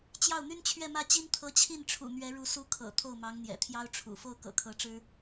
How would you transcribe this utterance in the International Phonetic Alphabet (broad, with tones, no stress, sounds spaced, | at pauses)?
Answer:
t͡ɕ j ɑ˥˩ ʊ̯ n̪ y˥ n t͡ɕʰ ɥ ɛ˥˧ m ä˥˩ t͡ɕ i˥ n t̪ʰ ɤ˧˥ t͡ɕʰ i˥˩ n ʈ͡ʂʰ ṵ˨˩ n̪ ɥ ɛ˧˥ ɻ u˧˥ s u˧˥ kʰ ɤ̰˨˩ t̪ʰ o˥˩ ʊ̯ m ɑ˧˥ ŋ n̪ j ɛ̰˨˩ t̪ʰ j ɑ˥ ʊ̯ ʈ͡ʂʰ ṵ˨˩ f o˥˩ ʊ̯ k ɤ̰˨˩ kʰ ɤ˧˥ ʈ͡ʂ ɻ̩˥